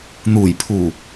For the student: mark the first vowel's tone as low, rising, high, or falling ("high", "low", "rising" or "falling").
low